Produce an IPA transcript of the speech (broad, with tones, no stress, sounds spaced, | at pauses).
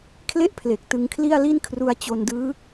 kʰ l e˥˩ ʔ pʰ l e˨˩ k̚ t ɯ˧ ŋ kʰ l i˥˩ a̯ l i˥˩ n kʰ r u˦˥ a̯ t͡ɕ o˧ n d ɯː˦˥